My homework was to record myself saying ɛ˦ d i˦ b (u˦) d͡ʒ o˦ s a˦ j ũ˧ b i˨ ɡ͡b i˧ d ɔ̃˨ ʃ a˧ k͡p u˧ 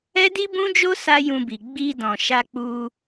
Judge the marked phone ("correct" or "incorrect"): incorrect